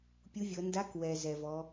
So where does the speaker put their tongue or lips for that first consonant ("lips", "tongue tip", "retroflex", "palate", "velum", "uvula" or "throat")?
lips